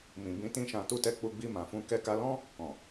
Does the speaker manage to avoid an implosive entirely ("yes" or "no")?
yes